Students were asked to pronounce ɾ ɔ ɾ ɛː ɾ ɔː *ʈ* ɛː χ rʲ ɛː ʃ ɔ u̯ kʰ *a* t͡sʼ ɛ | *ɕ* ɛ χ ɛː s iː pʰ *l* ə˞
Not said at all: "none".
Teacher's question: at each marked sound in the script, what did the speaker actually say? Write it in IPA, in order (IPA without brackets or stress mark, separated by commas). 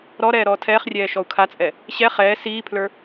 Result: tʰ, a, ɕ, l